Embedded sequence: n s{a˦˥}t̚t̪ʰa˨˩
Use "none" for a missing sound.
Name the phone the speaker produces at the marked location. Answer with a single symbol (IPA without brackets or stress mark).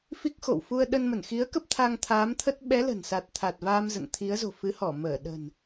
a˨˩